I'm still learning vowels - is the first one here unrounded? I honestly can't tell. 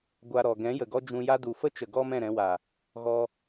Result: yes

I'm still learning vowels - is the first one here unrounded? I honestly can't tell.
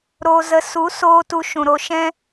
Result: no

